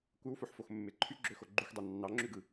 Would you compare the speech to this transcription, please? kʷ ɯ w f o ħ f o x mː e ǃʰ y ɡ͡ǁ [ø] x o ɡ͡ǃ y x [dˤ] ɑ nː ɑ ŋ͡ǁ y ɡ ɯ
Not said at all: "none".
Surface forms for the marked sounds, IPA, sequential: ø, dˤ

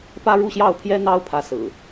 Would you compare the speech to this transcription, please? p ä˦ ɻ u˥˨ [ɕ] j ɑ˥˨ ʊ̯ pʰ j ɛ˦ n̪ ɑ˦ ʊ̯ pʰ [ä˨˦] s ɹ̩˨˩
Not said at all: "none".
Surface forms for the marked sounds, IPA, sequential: ɕ, ä˨˦

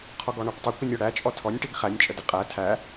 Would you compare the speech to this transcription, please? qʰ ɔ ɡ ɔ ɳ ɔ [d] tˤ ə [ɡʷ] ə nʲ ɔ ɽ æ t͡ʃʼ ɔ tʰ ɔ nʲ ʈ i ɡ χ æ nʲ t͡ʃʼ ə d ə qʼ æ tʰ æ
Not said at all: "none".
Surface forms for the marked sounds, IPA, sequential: ʈ, kʷ

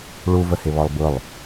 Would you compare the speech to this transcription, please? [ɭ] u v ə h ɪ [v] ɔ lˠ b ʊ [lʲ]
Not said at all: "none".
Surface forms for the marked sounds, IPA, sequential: ɭ, β, lˠ

